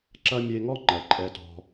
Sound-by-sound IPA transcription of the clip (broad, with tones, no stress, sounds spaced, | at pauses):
ǁ ɐ˧ mʲ e˧ ŋ ɔ˦ ŋ͡ǃ ɜ˨ ǃʼ ɛ˧ t ɔ̤˧